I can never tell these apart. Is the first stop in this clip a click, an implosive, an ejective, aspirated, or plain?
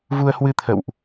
aspirated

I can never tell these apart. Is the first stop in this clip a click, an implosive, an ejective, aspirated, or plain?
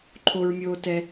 click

